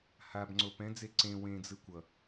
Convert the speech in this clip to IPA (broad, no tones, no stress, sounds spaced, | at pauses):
h a b ŋ͡ǀ o p ɛ̃ d͡z e ǀ ẽ w ẽ d͡z ɯ kʷ ʌ